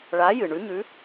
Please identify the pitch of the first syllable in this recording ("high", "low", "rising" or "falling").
rising